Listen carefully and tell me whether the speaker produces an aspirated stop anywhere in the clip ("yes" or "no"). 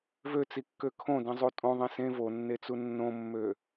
yes